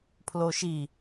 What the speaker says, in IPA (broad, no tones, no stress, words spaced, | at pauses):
pʰloʃi